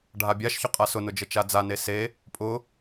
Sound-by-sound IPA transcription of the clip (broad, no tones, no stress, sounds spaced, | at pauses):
ɖʱ a bʲ a ʃ ç ʊ qʼ a s ʊ n ʊ d͡ʒ ə t͡ʃ a d͡z a n e s e | pʼ ʊ